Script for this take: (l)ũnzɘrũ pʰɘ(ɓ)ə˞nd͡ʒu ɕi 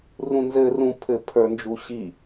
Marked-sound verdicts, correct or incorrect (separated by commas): incorrect, incorrect